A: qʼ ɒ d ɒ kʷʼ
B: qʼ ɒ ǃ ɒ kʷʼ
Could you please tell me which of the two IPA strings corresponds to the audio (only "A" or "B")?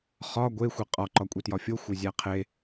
B